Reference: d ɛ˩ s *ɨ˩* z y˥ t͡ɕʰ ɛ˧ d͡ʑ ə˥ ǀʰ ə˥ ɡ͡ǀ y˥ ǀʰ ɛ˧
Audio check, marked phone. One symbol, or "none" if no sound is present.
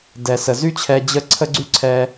ə˩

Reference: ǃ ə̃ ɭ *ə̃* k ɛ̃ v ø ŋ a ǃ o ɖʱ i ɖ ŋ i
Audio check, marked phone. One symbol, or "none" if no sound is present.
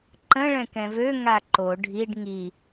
ɛ̃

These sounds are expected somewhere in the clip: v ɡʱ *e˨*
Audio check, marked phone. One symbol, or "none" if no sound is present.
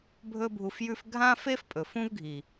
i˨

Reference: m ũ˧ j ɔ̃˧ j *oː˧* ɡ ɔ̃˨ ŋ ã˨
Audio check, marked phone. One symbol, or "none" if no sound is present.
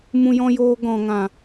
oː˧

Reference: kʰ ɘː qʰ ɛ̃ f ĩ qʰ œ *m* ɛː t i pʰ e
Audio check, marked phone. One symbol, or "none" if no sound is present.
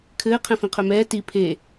m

